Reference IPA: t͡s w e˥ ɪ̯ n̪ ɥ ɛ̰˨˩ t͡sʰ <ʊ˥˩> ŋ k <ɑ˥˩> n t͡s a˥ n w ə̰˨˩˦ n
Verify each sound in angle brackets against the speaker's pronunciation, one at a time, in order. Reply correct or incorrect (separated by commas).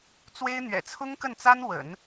incorrect, incorrect